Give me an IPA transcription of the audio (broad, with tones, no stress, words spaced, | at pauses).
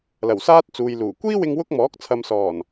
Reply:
lɐ˨˩wsaː˥t̚ t͡suː˨jluː˨˩ kʷiː˥wɪ˧ŋ wʊ˥k̚mɔː˨˥k̚ t͡sʰɐ˨msɔː˨˩n